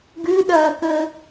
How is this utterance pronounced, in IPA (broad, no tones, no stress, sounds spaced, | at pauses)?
ɡ ʉ ɗ ɐː k əː